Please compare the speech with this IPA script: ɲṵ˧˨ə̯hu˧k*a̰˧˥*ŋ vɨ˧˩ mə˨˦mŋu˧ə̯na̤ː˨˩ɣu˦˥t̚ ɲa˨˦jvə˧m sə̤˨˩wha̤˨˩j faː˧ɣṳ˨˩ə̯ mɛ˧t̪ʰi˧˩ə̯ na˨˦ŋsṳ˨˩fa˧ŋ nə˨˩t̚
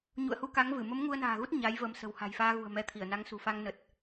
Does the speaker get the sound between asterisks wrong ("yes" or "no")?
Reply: yes